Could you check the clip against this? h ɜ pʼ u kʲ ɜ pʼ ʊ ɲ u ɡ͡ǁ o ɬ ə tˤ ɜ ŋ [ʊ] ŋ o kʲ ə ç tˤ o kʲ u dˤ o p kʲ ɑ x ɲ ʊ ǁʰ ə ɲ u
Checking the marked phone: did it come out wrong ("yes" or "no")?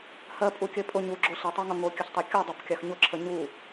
no